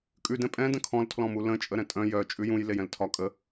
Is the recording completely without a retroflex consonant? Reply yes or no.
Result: yes